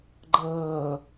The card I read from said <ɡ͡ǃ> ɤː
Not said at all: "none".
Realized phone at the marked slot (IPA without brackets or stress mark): ɡ͡ǃ